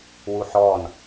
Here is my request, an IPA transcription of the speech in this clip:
w u ħ ɔ n

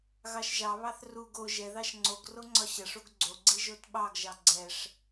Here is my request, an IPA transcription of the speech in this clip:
ɣ ɑ ʃ ʒ ɑ β ɑ θ r u ɡ o ʒ ɛ ð ɑ ʃ ŋ͡ǀ o ɡ r o ŋ͡ǀ ɒ ɕ ɐ ʂ o ɡ ɡ͡ǀ o ɡ͡ǀ i ʒ o t ɓ ɑ ɡ ʒ ɑ ɡ͡ǀ ɛ ʂ

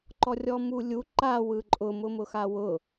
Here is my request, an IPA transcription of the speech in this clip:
ǃ ɔ rʲ ɔ m u lʲ u ǃ a w ɯ ǃʼ ʊ m ʊ m ʊ x a w ʊ

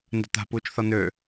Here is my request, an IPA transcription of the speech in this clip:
n d ə̤ t̪ a̤ p uː t͡ʃ θ ɒ n̪ ø

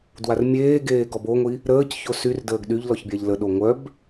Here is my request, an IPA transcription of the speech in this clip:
d w a r mʲ eː ɡ eː ɡ ɔ b o ŋʷ i | ɾ əː c ç o s y r d əː ɡ ɗ y ʎ l ɔ ç bʲ a ʎ l ə ɗ o ŋʷ œ b

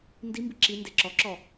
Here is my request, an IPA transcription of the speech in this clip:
n d i m b i ǁ i n d e ǁ ɔ ǁ ɔ

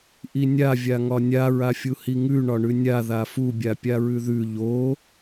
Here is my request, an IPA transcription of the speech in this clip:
ʔ i nʲ a vʲ a ŋ ɒ nʲ a ɹ a fʲ u h i ŋ ʉ ɳ ɒ ɳ ʉ nʲ a ð a f u bʲ a pʲ a ɹ ʉ ð ʉ ʎ o

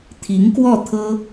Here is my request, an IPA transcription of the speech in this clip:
t̪ʰ i˧˥ ŋ k w ɔ˥˩ t̪ʰ ɤ˥

